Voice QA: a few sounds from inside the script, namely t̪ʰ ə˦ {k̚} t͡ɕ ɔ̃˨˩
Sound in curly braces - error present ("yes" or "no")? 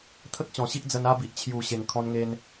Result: no